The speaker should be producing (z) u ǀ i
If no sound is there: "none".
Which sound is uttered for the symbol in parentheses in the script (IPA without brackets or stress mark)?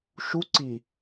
ʃ